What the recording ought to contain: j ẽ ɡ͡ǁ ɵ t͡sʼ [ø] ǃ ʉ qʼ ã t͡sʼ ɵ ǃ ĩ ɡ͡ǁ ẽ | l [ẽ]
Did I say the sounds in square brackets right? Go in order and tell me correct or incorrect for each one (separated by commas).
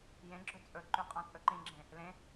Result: incorrect, correct